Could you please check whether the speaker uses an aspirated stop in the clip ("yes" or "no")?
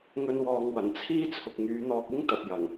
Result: yes